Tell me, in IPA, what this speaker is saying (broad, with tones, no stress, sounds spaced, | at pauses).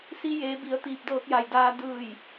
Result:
s i˧ j eː˩˧ b i˩˧ ə̯ t̪ iː˧˩ p̚ d ɤː˧ k̚ j a˩ j d aː˧ d ɯː˧˩ j